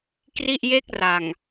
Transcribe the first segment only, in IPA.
k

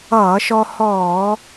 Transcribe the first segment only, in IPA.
ʌː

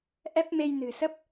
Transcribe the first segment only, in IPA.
ʔ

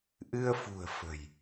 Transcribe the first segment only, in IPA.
ʔ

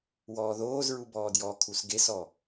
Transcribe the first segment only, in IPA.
w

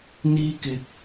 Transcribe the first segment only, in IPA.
n̪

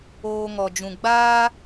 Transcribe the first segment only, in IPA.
oː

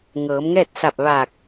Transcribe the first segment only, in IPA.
ŋ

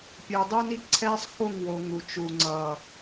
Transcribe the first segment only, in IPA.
pʲ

